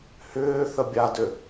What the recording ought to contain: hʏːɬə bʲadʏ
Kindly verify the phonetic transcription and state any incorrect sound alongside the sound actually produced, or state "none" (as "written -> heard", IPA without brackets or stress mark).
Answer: ɬ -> θ